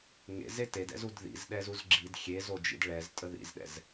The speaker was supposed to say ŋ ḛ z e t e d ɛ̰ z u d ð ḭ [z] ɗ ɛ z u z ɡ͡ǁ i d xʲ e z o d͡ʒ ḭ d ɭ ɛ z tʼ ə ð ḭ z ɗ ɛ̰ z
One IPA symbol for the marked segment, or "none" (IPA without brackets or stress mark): z